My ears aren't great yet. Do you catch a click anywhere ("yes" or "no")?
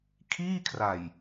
no